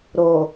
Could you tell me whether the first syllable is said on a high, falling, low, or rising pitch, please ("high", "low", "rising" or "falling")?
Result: low